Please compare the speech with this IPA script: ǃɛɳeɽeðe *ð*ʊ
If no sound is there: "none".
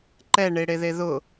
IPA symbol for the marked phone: ð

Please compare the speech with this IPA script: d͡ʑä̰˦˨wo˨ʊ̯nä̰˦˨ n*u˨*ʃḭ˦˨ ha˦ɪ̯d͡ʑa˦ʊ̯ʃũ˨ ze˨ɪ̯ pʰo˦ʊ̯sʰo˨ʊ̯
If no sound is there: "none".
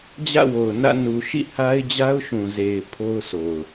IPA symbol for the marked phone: u˨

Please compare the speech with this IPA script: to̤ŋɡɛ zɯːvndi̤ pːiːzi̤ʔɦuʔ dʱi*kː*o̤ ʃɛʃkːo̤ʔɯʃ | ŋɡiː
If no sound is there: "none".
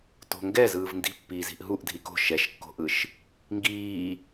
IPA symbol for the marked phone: k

